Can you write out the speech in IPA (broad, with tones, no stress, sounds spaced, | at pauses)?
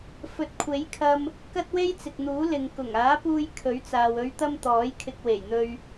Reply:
f ɵ˨ t̚ kʷʰ e˨˥ j kʰ ɐ˧ m | k ɐ˥ t̚ w e˥ j t͡s ɪ˨ k̚ n̪ uː˨˥ l ɪ˨ ŋ k ʊ˨˩ ŋ aː˨˥ p uː˧ j kʰ ɵ˨˥ ɥ t͡s aː˨ w ɵ˨˧ ɥ t̪ ɐ˧ m t̪ ɔː˨˥ j kʰ ɪ˧ k̚ w e˨˩ j n̪ ɵ˧ ɥ